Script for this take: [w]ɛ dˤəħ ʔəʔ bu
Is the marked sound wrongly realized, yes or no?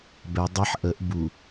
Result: yes